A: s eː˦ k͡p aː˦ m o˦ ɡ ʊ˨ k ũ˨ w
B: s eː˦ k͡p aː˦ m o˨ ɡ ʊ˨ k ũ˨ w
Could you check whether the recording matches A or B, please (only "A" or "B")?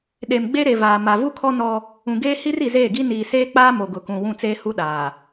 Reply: B